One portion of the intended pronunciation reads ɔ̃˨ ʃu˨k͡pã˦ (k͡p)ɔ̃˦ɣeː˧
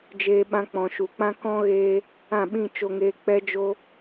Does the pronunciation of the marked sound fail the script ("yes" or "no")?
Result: yes